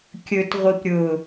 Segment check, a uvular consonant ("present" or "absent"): present